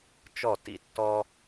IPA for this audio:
t͡ʃ ɔ˥˩ t ḭ˥˩ tː ɔ˥

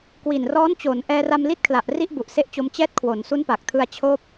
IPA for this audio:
k w i˨˩ n r ɔː˦˥ n t͡ɕ oː˩˦ n ʔ ɛː˧ r a˧ m l i˦˥ t̚ kʰ l a˨˩ ʔ r i˥˩ ʔ b u˨˩ ʔ s e˦˥ ʔ t͡ɕ o˧ m t͡ɕ ɛː˦˥ t̚ kʰ w o˩˦ n s u˦˥ n p a˨˩ k̚ tʰ ɯ˧ a̯ t͡ɕʰ oː˥˩ p̚

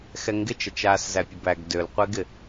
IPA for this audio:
x ɛ ŋ ɡ ɪ t͡ʃ ʌ t͡ʃ aː s z æ pʲ ə b æ ɡ d ø l qʷ e ɡ ɪ

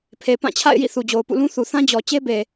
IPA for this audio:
pʰ e˨ p ã˦˨ t͡ɕʰ a̰˦˨ ɪ̯ j ḭ˦˨ θ u˨ d͡ʑ o˨ ʊ̯ p ṵ˦˨ l ũ˦ θ u˨ θ ã˦ d͡ʑ ɔ˨ t͡ɕ e˦ b e˨

